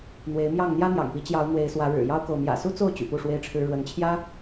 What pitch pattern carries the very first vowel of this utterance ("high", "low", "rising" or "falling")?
rising